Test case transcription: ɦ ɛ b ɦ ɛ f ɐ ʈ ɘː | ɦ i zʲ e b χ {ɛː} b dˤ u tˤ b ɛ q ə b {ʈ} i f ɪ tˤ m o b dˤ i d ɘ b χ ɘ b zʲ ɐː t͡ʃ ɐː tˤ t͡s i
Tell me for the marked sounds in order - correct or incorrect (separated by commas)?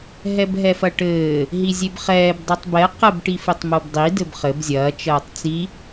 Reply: correct, correct